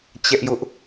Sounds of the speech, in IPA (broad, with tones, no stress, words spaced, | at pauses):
t͡ɕɛ˦ʔjʊ˦ʔ